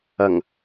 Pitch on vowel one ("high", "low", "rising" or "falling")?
low